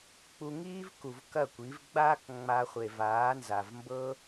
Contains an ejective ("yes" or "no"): no